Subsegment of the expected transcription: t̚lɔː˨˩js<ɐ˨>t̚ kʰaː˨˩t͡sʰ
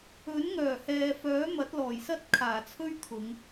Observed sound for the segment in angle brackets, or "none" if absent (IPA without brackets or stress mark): ɐ˥